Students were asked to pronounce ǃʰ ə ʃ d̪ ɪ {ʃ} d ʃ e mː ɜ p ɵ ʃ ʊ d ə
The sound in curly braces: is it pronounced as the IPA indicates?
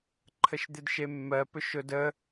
no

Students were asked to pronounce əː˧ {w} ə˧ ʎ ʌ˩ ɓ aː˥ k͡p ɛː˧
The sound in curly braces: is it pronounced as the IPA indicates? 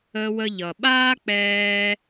yes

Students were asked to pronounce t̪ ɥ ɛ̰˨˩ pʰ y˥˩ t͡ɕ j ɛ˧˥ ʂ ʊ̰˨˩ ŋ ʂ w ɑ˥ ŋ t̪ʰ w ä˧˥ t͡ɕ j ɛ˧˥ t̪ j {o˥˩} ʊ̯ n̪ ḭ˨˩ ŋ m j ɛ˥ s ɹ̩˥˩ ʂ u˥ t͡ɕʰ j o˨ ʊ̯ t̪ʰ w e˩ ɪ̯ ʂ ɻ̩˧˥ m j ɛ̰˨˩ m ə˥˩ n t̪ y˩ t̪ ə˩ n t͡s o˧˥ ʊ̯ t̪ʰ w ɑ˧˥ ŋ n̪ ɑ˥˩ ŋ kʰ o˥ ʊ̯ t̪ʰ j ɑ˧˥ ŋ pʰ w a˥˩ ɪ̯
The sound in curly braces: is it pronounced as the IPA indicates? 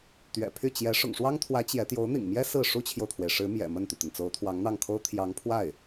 no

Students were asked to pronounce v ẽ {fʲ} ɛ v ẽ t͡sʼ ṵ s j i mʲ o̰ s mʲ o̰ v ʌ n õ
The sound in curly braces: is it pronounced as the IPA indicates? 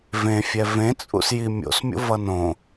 yes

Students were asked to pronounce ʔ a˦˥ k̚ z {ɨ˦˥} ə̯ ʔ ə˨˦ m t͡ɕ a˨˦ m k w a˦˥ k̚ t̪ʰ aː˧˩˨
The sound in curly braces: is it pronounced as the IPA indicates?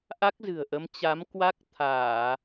no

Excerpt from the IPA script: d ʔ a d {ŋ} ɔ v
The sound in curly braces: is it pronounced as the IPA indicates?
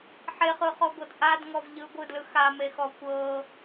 yes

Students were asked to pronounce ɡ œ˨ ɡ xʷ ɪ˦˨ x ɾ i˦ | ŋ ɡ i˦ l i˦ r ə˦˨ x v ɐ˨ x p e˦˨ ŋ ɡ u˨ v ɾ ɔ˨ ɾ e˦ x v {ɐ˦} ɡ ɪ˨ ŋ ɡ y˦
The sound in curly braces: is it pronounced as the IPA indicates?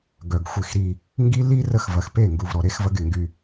yes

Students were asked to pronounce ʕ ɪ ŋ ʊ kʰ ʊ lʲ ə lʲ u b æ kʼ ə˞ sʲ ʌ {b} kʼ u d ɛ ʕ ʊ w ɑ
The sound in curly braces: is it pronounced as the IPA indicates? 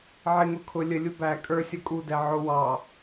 no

